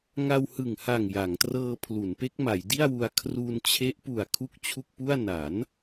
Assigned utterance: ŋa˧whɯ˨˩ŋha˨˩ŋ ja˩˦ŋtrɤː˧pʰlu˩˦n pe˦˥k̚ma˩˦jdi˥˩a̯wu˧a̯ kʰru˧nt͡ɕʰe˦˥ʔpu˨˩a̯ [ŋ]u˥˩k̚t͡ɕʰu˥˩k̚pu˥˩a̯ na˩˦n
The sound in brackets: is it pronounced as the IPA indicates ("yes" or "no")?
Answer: no